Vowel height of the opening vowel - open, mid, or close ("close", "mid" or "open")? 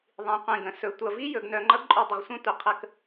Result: close